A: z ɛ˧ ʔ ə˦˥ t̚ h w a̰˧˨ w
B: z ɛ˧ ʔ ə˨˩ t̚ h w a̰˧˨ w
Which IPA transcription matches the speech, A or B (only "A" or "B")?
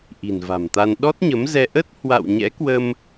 A